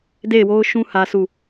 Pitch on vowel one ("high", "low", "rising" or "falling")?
falling